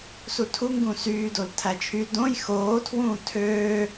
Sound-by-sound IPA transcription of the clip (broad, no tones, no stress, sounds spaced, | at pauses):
s u tʰ u ŋ ɡ ũ s yː d o l tʰ æ t͡ʃʰ y d õ j x oː tʰ w ũː tʰ øː